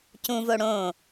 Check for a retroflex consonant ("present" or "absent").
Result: present